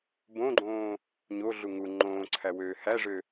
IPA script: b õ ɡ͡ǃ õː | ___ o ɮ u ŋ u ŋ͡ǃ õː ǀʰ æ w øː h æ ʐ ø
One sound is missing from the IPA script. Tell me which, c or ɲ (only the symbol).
ɲ